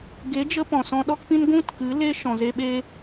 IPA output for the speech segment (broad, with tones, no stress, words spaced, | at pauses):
ɡe˨˦d͡ʒə˧ pɔ̃˨sɔ̃˧ɗɔ˦kpĩ˦n ɡʷũ˦t kɨ˨˦ le˦ ʃɔ̃˨ze˧ɓeː˦